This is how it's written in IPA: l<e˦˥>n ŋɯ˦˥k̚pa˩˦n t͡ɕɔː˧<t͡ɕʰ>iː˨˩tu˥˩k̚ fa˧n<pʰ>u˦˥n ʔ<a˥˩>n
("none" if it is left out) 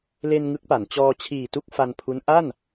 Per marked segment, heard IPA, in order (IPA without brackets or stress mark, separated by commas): e˧, t͡ɕʰ, pʰ, a˥˩